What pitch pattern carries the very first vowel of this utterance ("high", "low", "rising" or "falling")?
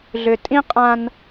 low